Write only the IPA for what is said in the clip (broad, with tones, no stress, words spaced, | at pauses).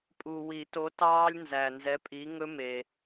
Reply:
pʼu˨wi˨˩˦to˨˥tɑː˦˥lʲ nzæ˨nzɛ˨˥pʼi˨˥ ŋɵ˦˥me˨